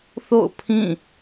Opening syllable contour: falling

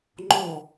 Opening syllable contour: falling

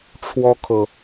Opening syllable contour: high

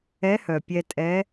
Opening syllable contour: rising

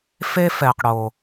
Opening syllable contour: high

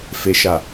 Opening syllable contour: low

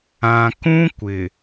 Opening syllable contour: low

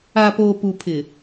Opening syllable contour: low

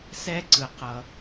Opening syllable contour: high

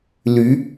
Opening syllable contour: rising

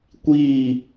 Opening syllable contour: falling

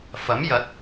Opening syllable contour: rising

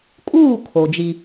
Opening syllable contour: falling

